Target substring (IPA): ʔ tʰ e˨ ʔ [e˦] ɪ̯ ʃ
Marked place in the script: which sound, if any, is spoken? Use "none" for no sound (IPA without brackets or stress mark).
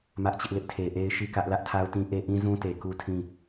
e˦